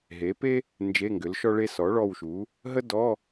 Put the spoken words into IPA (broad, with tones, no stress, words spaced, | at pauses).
ɦe˩˥pe˥ | nd͡ʒe˧˥˧ŋɡʏ˩˥lʃɔ˥ɭe˥ sɔ˩˥ɭɔ˦˨wʃu˩˥ | ɦə˥dɔ˧˥˧